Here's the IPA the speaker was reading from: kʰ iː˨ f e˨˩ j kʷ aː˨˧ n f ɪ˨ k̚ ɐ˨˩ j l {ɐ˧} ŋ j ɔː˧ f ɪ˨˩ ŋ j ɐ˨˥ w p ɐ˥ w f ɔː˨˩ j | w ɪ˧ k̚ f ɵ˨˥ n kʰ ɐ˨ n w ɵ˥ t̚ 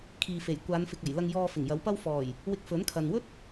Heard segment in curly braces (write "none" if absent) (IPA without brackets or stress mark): ɐ˧